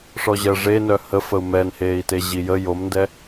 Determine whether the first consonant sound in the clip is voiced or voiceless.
voiceless